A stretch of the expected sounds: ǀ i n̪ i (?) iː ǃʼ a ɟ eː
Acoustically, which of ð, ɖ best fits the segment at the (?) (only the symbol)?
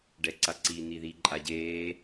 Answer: ð